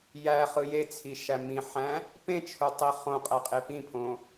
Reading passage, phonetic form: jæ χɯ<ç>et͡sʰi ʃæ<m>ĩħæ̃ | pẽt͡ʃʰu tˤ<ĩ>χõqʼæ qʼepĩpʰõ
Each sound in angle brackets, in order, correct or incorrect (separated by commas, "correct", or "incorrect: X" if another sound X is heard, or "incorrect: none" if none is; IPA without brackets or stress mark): incorrect: j, correct, incorrect: i